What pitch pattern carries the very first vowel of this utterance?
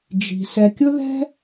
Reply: low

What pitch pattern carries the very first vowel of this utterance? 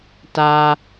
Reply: low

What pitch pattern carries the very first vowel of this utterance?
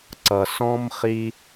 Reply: low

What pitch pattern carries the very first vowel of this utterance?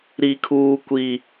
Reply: high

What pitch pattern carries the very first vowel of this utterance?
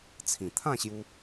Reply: low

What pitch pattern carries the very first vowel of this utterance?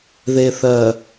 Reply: low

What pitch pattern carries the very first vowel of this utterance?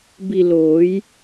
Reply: low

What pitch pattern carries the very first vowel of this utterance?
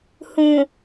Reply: low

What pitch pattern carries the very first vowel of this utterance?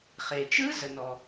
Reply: low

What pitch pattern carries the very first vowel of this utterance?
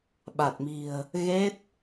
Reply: low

